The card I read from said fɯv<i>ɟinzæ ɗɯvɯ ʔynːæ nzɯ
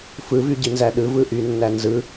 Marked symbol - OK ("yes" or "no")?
no